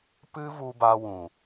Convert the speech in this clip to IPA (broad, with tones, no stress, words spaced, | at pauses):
pɨ˦vu˧ba˧wũ˨